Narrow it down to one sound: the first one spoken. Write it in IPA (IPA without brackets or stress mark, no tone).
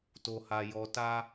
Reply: t